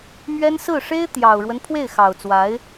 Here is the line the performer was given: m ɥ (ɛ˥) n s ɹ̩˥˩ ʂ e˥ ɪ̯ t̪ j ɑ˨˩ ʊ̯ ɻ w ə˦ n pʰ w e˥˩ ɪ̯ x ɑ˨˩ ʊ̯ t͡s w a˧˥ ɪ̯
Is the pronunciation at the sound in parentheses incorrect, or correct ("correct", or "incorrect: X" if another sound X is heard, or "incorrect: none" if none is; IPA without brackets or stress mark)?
correct